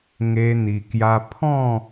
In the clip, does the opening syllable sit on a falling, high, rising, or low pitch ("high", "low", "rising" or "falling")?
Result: high